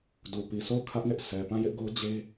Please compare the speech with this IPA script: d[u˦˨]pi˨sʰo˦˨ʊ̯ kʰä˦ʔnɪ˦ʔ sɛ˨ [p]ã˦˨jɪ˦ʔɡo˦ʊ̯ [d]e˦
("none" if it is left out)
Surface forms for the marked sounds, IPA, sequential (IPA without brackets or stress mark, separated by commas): u˨, p, d͡ʑ